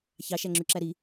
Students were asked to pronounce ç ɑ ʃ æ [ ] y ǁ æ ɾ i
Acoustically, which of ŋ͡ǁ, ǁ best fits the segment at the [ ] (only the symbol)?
ŋ͡ǁ